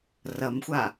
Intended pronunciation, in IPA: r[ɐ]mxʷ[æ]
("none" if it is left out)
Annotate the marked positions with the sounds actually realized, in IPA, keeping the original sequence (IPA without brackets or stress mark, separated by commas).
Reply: ɐ, a